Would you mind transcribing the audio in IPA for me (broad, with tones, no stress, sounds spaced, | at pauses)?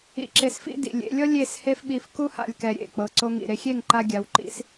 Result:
ḭ˧ ǁ e˧ s f ḭ˦ d ḭ˨ lʲ ḛ˧ lʲ ɔ˦ lʲ e˦˨ s h e˦ f ɓ i˧ f k u˦ h a̰˧ lʲ k ɛ˧ ɾʲ ḛ˨ k͡p ɤ˧ ǀ o˧ ŋ ḭ˨ ɾ e˧ xʲ e˦˨ ŋ ǃ a˧ ɡʲ a˨˦ w ǃ ḭ˦ s